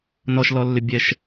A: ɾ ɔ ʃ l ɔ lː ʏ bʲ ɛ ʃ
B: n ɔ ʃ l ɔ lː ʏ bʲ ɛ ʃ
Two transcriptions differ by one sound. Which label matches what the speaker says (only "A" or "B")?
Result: B